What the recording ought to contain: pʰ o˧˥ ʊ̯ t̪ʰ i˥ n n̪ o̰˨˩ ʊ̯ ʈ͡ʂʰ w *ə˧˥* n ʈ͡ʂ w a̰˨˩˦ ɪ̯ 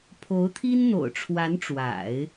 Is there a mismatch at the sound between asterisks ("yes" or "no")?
yes